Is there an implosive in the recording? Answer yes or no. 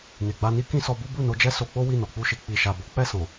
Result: no